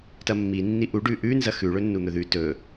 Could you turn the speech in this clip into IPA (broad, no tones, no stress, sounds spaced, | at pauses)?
t ɐ mː i nː i ʔ u ɖ ʉ ʔ ʉ n z ɐ x ʉ ɭ ɵ nː u n̪ ɵ ð ʉ t ɵ